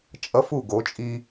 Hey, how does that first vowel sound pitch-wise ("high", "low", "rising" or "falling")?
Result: high